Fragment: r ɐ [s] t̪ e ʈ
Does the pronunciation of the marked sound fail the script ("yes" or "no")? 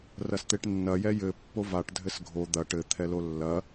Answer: no